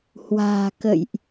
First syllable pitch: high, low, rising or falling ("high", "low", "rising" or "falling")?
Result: low